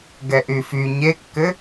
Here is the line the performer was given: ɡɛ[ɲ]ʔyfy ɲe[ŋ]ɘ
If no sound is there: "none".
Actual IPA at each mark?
none, kː

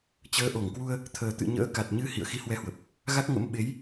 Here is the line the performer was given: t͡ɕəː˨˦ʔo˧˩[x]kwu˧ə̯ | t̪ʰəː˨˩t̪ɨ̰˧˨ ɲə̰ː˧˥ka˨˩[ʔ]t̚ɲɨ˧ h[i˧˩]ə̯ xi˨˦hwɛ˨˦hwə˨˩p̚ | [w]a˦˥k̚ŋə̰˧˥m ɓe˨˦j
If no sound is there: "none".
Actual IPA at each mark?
ŋ, none, ḭ˧˨, ɣ

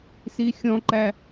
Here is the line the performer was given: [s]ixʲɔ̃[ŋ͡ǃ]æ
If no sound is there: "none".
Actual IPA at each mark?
s, ǃ

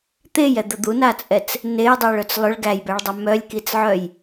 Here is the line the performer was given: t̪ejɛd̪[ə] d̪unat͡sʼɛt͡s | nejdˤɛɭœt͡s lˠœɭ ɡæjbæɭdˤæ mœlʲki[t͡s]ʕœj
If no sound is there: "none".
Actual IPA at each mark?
ə, t͡s

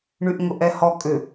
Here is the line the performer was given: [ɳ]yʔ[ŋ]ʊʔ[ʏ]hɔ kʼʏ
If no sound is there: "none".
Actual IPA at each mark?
ɳ, ŋ, ɛ

